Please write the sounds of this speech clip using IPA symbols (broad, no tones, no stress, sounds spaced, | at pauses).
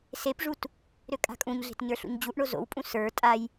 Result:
s e p ʐ u t | ɾ ø kʼ a̤ kʼ ũ ɲ ɮ e̤ t ɲ ə˞ ɬ ṵ ɲ d͡ʑ u ʔ ɳ o z o̰ w pʼ ũ s ə˞ tʼ a j